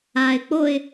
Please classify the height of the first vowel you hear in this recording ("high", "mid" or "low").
low